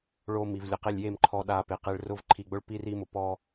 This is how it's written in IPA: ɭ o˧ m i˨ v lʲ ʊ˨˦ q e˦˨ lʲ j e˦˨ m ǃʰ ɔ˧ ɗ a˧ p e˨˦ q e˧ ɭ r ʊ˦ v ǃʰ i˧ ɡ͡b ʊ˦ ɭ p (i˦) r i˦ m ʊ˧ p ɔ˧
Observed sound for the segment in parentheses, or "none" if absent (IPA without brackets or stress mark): i˦